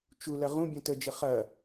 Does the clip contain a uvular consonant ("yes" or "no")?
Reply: yes